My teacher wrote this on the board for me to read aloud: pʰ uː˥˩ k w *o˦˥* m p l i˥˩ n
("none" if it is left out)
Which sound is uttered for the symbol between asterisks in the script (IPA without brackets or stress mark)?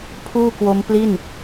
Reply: o˦˥